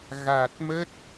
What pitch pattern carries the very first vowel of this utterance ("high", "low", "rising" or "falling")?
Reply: low